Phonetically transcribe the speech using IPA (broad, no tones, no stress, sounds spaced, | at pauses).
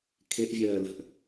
kʰ e ʔ vʲ ɜː l ə̤ ʔ